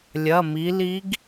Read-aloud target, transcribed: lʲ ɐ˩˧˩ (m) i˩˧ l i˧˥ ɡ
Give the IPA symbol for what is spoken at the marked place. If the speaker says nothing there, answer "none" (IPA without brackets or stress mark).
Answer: m